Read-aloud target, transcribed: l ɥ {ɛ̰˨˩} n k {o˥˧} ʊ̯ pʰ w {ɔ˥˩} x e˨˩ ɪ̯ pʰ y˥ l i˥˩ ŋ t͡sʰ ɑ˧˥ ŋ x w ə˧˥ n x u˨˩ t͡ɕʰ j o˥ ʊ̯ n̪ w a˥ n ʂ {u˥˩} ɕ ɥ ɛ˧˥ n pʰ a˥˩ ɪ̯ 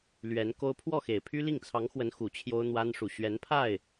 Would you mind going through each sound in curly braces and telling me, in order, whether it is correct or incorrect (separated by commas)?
incorrect, incorrect, correct, incorrect